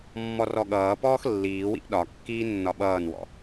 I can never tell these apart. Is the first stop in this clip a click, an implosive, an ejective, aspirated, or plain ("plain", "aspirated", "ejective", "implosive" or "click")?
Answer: implosive